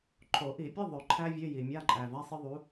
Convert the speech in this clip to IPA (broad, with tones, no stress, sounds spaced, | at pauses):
ǃʰ o˨˩˦ ʔ i˨˩˦ pʲ ə˧˥˧ ðˤ ø˨˩˦ ǃʰ æ˥ vʲ ø˧˥˧ j i˩ mʲ a˧˥˧ ǃʼ æ˩ v a˧˥˧ sˤ ə˥ ðˤ u˨˥